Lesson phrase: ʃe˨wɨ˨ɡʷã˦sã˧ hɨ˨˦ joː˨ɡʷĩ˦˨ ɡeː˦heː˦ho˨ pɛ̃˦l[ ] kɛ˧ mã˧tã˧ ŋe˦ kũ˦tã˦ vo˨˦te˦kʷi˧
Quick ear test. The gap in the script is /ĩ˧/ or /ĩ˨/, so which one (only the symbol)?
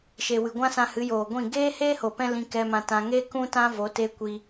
ĩ˧